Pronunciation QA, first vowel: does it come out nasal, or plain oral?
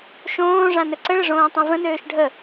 nasal